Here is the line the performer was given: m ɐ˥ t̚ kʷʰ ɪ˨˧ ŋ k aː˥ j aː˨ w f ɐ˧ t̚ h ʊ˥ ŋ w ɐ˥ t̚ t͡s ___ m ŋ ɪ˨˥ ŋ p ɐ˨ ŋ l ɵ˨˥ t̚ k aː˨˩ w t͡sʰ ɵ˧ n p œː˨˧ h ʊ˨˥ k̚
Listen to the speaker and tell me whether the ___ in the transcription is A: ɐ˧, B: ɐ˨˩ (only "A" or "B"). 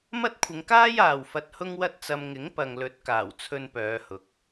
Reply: A